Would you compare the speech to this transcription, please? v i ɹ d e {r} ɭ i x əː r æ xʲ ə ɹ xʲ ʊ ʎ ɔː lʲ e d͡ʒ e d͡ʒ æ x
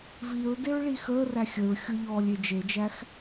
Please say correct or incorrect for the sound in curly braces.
incorrect